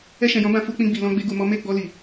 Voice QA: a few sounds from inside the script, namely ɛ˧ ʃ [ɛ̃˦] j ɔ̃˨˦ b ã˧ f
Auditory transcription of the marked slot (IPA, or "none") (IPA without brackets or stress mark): ɛ̃˨